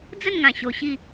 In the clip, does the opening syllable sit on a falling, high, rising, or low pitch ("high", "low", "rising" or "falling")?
falling